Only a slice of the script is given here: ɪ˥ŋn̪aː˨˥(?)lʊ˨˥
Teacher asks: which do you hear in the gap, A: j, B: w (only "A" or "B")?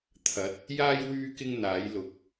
A